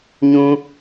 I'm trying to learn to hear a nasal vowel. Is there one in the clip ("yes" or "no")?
yes